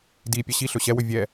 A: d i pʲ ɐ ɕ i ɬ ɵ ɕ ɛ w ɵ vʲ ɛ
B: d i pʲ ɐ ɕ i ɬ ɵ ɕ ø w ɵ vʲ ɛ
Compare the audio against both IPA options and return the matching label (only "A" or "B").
A